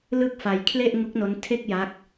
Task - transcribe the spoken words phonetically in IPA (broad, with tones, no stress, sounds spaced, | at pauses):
l ɯ˥˩ k̚ f a˧ j kʰ l e˥˩ ʔ ŋ u˦˥ k̚ n o˦˥ n tʰ e˥˩ k̚ j a˦˥ k̚